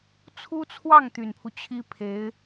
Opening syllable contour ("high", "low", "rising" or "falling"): high